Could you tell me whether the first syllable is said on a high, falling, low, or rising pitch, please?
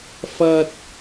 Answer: high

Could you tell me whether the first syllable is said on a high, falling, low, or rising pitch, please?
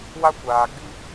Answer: high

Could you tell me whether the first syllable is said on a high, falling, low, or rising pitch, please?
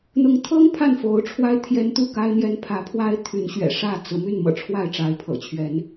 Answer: rising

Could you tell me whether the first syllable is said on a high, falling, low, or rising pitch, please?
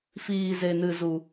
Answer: low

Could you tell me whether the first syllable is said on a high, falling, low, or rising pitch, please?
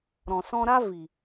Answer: low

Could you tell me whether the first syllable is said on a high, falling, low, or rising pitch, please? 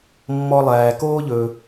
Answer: high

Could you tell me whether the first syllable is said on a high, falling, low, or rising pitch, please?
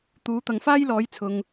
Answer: rising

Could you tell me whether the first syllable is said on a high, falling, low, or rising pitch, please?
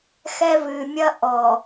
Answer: high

